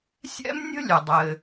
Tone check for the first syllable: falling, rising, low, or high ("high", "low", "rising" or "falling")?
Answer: high